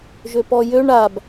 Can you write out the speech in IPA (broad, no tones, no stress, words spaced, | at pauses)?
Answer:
ʒøpɔjøɳ ab